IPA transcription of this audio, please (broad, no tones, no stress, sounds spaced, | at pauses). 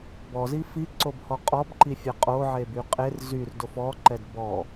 b ɔ z i f i ǀ o b h ɔ qʼ ɔ b ǃ i fʲ ɛ qʼ o ʕ e b y qʼ e r z y r d o f ɔ ǃ ɛ d b ɔ